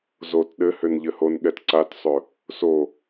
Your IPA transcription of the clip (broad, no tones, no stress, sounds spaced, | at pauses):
z o t ɗ ɘ h ʏ n ʎ ɘ h o n ɠ ɛ t ǀ a t sˤ ɵ | s o